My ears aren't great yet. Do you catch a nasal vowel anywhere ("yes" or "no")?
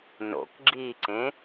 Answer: yes